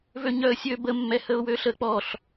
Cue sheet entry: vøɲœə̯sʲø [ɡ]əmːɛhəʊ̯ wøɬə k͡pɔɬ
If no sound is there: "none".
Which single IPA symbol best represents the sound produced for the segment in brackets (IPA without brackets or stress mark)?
b